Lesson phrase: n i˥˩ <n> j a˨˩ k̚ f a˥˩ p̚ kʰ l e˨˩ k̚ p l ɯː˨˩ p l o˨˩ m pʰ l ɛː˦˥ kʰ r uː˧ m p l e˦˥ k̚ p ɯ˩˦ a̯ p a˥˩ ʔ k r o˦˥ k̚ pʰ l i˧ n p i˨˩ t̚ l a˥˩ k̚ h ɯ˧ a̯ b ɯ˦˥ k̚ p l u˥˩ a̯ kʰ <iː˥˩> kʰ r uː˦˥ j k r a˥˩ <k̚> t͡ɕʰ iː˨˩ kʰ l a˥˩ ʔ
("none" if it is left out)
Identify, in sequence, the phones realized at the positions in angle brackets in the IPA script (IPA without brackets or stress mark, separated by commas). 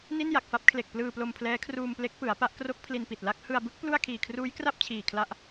n, iː˨˩, p̚